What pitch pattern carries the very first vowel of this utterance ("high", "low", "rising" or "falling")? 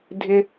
high